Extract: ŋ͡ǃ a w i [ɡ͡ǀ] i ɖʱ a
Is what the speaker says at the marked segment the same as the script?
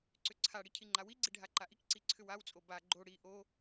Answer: yes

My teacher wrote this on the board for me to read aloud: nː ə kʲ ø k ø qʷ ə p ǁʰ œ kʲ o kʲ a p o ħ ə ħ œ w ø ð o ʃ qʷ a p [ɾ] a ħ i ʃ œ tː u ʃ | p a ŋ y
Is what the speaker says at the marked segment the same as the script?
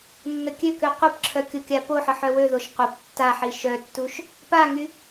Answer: no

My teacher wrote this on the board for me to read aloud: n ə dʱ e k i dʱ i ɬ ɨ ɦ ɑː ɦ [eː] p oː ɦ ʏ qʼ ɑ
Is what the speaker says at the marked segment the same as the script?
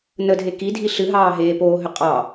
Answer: yes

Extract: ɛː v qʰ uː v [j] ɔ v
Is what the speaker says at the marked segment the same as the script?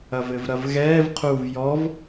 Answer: yes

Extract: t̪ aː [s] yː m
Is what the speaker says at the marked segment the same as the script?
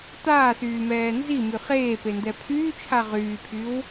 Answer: yes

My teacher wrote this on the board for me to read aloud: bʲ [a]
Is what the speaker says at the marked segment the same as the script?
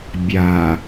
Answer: yes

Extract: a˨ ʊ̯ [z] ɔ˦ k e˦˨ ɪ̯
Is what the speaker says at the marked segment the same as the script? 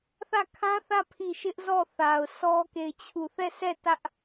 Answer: no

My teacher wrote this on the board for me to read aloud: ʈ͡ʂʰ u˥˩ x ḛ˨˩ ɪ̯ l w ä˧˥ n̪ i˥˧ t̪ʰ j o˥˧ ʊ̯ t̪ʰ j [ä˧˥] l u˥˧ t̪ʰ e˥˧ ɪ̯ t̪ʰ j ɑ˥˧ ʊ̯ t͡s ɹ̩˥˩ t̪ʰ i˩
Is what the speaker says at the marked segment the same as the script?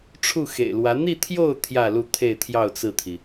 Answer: no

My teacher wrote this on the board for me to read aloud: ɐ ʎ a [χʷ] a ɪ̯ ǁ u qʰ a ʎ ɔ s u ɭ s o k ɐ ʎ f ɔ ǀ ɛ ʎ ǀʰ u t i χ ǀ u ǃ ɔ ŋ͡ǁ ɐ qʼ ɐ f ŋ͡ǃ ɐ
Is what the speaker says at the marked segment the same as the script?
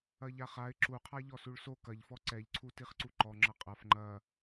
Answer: no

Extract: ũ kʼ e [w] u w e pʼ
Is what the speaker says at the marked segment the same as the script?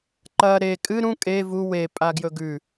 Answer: no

